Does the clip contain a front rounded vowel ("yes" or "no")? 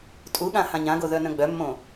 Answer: yes